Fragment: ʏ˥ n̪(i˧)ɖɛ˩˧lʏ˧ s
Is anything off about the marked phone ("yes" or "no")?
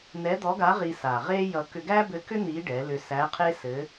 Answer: yes